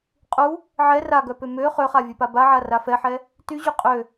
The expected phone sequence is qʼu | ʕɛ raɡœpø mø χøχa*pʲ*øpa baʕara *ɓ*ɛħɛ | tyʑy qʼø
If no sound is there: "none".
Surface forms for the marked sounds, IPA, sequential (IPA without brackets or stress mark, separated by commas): vʲ, f